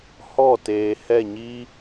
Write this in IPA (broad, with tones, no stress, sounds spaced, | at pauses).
h ɔ˦˨ t eː˨ h ɛ˦˨ ɲ i˦